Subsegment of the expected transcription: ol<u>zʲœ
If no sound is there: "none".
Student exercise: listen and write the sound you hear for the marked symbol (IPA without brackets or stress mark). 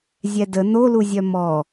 u